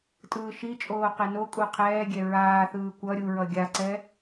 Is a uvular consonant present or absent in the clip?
present